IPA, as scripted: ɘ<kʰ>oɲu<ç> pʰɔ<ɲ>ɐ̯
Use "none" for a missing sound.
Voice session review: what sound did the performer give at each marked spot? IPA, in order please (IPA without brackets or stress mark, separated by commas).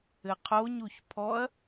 qʰ, ç, none